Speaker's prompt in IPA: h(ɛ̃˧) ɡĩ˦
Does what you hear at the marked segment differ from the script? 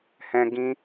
no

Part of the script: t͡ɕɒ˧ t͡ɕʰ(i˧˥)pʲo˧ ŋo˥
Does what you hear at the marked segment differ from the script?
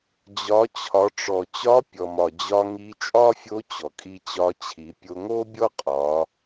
yes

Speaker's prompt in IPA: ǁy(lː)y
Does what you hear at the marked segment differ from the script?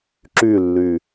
no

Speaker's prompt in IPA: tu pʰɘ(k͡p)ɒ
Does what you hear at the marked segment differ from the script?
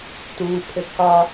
yes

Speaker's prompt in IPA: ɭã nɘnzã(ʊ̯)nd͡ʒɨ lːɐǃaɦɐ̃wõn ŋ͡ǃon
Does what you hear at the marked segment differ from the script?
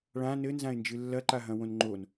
yes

